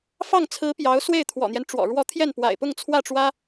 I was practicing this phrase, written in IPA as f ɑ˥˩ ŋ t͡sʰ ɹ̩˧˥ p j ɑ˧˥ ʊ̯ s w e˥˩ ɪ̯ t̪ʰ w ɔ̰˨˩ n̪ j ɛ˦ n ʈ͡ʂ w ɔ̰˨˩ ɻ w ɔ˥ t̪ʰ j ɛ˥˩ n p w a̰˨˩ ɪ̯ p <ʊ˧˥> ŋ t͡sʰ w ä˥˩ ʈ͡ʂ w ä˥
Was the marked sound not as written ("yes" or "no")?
yes